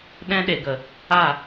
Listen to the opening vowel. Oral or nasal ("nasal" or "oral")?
nasal